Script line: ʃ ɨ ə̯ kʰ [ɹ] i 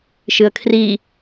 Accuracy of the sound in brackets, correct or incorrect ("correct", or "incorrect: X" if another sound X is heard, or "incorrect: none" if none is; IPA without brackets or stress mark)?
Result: incorrect: r